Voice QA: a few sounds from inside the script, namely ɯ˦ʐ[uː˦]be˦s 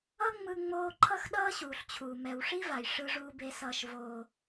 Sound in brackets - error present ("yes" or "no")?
no